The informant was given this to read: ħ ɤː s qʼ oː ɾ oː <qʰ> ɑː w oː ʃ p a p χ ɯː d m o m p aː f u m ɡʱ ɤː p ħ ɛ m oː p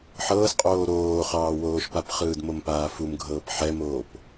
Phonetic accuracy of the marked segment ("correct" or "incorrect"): incorrect